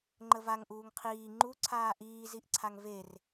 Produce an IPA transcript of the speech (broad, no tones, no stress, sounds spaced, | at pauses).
ŋ͡ǃ ə v a ŋ ʔ uː ŋ qʰ iː ŋ͡ǃ u ǀʰ aː ʔ iː z i ʔ ǀʰ a ŋ v e r